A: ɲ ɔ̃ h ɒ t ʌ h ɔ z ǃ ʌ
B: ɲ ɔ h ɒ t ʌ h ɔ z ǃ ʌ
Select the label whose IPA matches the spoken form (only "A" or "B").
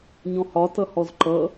A